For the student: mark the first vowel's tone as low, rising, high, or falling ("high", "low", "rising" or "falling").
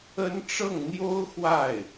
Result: high